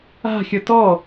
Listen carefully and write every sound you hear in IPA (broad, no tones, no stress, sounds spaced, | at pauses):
a̤ xʲ ʌ t ɔ